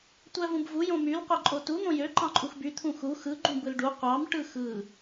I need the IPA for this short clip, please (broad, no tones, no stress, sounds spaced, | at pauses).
tʷ æ v ũ b v u j õ m y l qʷ e ǃʼ o t u n̪ õ j ø ǃ ɑ̃ ǃʼ u x b y t̪ʰ ũ x u x ɯ ɡ͡ǃ ũ b ɯ l ɖ u qʷ ɑ m ʈ ɯ x ɯ